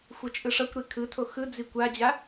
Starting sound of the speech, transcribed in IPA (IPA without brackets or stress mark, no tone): xʷ